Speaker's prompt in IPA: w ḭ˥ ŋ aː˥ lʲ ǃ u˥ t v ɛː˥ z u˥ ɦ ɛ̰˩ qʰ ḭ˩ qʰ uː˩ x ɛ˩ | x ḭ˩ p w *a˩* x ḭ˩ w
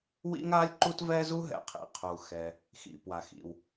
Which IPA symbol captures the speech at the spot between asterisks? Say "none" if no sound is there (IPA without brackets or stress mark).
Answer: a˩